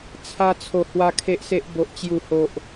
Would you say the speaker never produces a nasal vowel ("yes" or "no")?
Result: yes